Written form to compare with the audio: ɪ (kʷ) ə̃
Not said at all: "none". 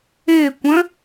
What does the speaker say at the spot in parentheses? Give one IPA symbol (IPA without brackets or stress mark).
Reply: kʷ